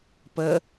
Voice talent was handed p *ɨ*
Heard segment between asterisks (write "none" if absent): ə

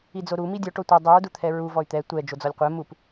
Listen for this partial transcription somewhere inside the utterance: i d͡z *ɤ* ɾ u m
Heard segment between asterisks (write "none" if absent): o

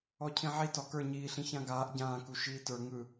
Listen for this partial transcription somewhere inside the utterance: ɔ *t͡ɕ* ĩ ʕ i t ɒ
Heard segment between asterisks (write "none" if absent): cʰ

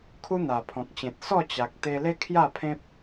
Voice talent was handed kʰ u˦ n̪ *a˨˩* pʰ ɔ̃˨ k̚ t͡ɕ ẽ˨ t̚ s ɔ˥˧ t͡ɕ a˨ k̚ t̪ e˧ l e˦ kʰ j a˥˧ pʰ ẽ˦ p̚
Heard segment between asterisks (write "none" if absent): a˨˩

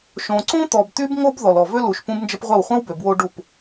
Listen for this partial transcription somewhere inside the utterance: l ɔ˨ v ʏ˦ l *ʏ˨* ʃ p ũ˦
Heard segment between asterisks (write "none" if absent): u˨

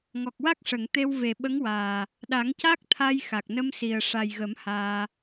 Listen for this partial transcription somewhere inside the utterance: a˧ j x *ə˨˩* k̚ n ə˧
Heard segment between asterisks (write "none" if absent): a˨˩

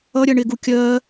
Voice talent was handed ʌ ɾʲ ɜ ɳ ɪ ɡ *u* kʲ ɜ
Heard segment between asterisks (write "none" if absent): u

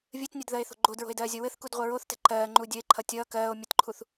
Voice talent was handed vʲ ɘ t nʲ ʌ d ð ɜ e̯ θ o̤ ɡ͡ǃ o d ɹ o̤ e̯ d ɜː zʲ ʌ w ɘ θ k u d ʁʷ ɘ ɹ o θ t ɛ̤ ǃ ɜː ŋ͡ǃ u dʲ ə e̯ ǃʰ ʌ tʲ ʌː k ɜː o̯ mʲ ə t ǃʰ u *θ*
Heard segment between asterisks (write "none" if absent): θ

